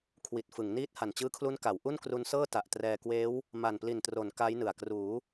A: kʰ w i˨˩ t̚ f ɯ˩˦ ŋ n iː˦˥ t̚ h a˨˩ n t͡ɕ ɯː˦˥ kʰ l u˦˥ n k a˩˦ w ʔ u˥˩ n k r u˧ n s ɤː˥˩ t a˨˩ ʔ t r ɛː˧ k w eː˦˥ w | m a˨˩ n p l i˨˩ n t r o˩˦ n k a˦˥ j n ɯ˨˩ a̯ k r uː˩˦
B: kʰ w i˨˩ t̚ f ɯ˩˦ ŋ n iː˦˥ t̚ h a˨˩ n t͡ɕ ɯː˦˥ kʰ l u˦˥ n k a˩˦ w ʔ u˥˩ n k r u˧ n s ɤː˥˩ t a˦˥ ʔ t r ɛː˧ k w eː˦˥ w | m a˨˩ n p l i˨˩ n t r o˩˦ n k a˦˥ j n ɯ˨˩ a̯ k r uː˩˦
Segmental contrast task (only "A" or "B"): A